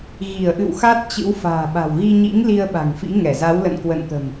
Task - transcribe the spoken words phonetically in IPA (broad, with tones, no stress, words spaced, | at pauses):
ɣi˧˩ə̯ʔɨ̰˧˨w xa˦˥t̚ t͡ɕɨ̰˧˥w fa̤ː˨˩ɓa̤˨˩wɣi˧ ɲḭ˧˥ŋ li˧ə̯ɓa̤˨˩ŋfḭ˧˥ ŋɛ˧˩za˨˦wlə̰˧˨n kwə̰˧˨nt̪ə̤˨˩m